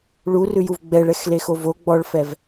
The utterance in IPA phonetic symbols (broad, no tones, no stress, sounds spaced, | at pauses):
ɭ u r ʉ j u v ɡ͡b ɛ ɭ ɛ x l e x o v o ɡ͡b ɔ ɭ f ɛ v